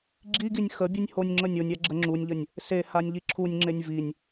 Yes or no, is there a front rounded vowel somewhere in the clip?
yes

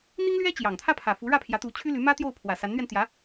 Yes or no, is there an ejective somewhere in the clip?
no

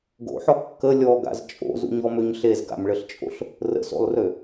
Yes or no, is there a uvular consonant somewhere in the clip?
no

